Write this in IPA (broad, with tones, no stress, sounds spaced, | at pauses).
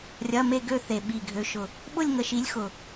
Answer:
rʲ ɐ˧˥˧ m e˥˧ ɡ ø˥˧ θ e˨˩ ɓ i˨˩ ɡʱ ø˨˦ ʃ ʊ˨˩ | ɓ ʊ˥˧ lʲ ŋ ə˨˦ ʃ i˨˦ lʲ x ʊ˨˩